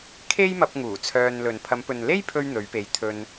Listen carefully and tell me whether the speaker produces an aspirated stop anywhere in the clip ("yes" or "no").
yes